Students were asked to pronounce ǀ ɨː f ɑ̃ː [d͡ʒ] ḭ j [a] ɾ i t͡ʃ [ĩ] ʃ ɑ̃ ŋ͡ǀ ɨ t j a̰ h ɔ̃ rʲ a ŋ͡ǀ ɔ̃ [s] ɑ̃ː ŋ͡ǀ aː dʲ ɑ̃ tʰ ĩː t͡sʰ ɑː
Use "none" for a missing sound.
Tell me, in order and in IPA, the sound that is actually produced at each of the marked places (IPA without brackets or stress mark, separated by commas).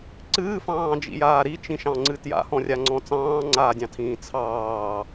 d͡ʒ, aː, ĩ, t͡s